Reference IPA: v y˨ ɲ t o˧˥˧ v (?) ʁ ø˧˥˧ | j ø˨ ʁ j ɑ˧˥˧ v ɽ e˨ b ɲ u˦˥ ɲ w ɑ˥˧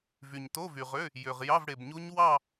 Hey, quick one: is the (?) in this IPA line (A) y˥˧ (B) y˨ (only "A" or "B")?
B